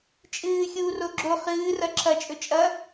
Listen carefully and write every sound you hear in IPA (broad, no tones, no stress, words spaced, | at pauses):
t͡ʃʼɨː xʲuːroɡ͡ǁo χɨːrɐ ǁʰɐt͡ʃʼɵ t͡ʃʼɐ